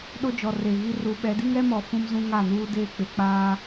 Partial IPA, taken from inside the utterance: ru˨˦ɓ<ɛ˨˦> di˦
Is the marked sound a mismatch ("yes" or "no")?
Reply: no